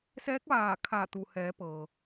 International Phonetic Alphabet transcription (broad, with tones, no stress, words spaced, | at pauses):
sɛː˧˥k̚ʋaː˧˩ kʰa˧˩t̪u˩hɛː˩˧ pɤː˩